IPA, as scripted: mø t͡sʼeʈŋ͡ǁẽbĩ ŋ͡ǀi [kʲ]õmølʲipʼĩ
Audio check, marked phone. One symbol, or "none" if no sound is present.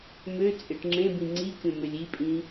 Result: kʲ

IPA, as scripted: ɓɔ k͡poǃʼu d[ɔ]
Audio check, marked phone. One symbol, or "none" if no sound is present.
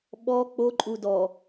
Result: ɔ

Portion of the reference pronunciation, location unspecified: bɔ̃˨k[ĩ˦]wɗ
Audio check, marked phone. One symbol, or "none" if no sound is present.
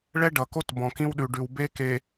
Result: ĩ˦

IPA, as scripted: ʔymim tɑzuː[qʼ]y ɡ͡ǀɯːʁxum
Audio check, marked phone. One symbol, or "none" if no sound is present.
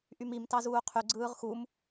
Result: qʰ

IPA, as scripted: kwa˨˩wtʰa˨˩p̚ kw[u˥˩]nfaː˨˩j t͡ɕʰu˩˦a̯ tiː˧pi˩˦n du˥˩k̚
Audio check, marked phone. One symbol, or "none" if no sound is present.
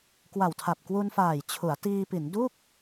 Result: u˧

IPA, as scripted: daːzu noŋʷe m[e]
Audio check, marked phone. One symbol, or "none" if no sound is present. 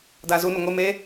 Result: e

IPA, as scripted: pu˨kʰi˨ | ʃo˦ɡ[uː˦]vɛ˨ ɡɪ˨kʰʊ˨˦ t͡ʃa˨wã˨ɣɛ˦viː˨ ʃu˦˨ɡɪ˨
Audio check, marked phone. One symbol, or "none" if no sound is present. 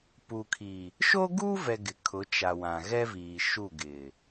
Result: uː˦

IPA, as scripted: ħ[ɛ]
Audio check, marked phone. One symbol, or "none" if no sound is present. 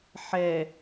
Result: ɛ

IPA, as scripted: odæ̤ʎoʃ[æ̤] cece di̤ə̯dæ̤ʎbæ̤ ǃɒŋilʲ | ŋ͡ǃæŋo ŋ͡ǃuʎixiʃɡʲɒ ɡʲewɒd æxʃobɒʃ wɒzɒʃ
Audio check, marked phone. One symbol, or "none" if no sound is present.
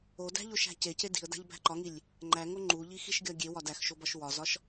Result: æ̤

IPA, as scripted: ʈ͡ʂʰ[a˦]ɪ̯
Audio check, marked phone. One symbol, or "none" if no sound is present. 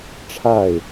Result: a˥˨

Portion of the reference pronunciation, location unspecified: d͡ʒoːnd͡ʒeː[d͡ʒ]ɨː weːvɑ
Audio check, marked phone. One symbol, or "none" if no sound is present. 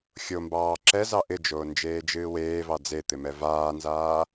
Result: d͡ʒ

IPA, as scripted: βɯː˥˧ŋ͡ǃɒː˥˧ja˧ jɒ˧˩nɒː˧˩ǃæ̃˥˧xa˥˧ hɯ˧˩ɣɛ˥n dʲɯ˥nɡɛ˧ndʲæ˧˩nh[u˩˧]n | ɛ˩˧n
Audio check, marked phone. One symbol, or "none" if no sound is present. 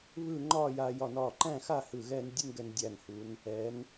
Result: u˩˧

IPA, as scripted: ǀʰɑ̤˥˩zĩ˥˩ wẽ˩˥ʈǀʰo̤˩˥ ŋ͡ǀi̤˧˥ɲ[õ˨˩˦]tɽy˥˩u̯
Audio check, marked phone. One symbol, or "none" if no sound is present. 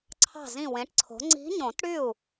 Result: õ˨˩˦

